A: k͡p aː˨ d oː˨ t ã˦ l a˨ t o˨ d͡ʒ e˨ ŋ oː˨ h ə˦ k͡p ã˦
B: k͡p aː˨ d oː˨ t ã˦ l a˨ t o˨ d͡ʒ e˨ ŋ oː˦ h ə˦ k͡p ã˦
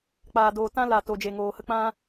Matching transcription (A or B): A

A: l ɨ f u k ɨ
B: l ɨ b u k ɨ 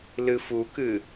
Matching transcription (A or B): A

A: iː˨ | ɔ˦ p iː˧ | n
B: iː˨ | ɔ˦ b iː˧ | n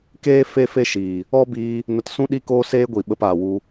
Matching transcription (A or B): B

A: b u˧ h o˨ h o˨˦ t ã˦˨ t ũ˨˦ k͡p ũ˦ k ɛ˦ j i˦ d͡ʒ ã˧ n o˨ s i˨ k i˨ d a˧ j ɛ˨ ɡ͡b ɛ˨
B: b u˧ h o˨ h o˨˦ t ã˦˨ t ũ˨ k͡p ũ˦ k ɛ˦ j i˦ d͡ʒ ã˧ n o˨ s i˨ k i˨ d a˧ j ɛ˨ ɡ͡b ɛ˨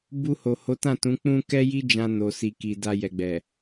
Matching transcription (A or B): A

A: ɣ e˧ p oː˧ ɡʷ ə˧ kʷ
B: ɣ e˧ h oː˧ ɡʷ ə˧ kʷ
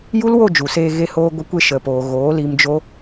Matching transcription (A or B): B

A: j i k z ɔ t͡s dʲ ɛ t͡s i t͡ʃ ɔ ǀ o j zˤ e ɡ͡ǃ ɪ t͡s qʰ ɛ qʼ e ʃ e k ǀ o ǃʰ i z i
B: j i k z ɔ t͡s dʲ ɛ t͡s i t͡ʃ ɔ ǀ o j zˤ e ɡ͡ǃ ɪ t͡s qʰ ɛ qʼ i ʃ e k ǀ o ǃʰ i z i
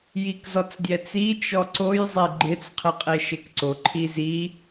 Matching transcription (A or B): A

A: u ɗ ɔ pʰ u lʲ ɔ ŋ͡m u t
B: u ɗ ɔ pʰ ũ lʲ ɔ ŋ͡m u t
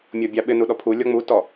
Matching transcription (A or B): A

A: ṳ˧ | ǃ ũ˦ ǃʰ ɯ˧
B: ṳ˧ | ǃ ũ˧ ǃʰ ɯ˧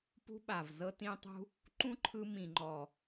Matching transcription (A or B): A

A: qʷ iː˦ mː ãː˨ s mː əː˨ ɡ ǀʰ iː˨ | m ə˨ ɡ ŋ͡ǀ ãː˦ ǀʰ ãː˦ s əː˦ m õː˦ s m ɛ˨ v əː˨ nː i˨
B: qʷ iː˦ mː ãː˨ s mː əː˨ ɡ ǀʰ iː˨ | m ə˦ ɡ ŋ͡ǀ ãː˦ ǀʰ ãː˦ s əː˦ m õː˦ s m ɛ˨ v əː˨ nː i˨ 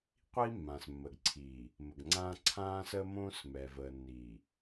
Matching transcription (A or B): A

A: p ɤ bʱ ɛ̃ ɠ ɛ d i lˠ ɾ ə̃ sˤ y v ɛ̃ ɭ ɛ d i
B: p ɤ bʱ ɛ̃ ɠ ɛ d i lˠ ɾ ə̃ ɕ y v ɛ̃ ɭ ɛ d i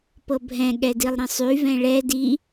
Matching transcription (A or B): A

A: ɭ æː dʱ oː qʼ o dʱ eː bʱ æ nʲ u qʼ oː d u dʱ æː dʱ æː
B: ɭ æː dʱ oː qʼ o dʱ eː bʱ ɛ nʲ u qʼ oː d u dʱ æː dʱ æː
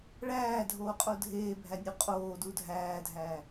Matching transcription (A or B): A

